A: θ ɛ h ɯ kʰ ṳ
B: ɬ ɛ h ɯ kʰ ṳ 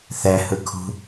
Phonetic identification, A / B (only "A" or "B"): A